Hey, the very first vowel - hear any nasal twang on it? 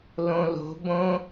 yes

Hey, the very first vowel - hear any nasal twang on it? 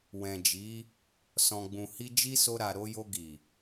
yes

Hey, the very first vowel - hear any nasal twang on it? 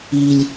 no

